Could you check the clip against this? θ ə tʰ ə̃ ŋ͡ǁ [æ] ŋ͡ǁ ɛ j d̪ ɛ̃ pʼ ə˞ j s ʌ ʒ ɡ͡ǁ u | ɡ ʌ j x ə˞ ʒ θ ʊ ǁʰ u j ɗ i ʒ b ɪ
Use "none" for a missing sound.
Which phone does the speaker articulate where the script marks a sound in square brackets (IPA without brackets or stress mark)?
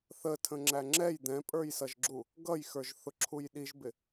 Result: æ